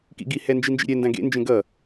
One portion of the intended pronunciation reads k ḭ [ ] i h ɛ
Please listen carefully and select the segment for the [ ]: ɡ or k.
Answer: ɡ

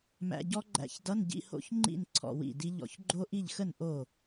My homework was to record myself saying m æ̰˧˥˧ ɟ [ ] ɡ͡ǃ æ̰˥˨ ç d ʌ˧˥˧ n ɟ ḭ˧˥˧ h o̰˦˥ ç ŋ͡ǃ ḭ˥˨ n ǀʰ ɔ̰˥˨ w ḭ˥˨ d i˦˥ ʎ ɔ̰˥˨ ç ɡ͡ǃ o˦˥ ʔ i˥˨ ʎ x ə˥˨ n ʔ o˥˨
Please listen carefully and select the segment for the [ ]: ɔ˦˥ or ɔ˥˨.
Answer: ɔ˦˥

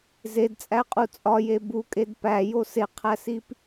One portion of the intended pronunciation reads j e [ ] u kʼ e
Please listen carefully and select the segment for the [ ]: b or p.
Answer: b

